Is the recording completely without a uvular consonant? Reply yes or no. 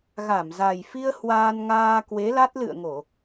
yes